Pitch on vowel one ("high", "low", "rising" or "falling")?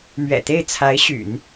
low